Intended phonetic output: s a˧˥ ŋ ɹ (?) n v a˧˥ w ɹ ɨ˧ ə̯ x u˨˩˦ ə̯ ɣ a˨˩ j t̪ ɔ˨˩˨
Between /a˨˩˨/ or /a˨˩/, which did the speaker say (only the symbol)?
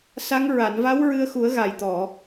a˨˩˨